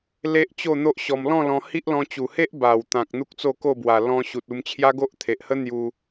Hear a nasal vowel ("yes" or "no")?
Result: yes